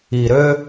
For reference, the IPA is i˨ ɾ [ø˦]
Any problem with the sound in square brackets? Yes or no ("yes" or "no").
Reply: no